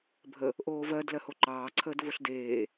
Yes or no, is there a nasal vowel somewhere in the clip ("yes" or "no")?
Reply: no